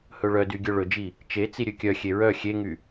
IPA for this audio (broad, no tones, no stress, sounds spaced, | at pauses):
h ɵ ɭ œ d y ɡʲ œ ɭ ɵ d͡ʒ i | t͡ʃ e t͡s i ɾʲ ø kʲ œ xʲ e ɹ œ xʲ e ŋ y